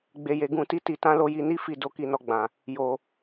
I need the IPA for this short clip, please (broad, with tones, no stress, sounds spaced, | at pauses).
ɡ͡b e˧ j e˧ ɡ ũ˧ t i˦ t i˧ t ã˦ l o˦ j i˦ n i˦ f i˦˨ d o˨˦ k i˧ n ɔ˧ ɡ͡b ã˨ | j o˧